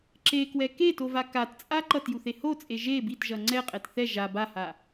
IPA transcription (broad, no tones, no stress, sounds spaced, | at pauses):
ǁ e k w ɛ k e t o v a k a t t͡sʼ a ǃ ʌ t j u θ e h o t͡sʼ e ʒ e b i t ʒ ʌ ŋ͡ǀ ɛ qʼ ɛ t θ ɛ ʒ a b a h a